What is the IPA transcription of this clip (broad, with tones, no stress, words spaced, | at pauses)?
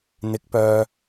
n̪ɪ˨˥k̚pœː˨